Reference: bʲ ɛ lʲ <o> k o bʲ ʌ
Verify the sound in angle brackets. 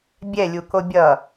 incorrect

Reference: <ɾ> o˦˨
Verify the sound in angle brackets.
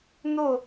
incorrect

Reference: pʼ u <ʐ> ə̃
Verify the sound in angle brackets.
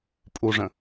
correct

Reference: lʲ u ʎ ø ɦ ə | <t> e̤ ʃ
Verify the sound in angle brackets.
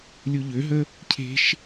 incorrect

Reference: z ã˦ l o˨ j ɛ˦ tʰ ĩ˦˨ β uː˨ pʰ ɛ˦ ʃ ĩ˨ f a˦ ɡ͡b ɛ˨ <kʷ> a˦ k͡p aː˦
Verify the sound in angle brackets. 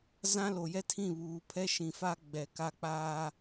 incorrect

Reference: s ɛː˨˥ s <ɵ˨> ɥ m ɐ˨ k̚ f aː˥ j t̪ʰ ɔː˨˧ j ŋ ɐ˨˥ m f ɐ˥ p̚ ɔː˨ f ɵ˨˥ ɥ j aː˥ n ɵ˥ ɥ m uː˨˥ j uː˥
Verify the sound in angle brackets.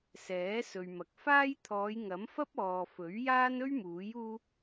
correct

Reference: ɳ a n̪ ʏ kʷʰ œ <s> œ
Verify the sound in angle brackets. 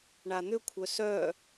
correct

